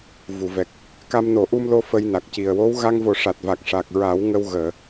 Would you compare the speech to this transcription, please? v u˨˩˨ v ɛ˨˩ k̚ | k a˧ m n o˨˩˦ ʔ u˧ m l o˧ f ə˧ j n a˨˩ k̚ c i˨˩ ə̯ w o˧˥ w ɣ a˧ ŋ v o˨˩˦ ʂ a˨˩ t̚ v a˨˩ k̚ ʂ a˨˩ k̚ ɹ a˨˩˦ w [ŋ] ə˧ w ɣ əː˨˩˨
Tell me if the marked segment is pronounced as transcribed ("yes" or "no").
yes